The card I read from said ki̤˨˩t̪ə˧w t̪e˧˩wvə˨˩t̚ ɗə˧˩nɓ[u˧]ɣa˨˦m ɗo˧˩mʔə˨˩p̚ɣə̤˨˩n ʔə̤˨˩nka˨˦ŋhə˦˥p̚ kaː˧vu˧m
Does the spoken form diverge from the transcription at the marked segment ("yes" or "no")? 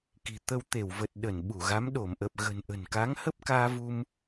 yes